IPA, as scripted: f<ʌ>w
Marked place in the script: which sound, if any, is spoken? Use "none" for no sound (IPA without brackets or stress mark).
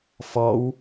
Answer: ɔ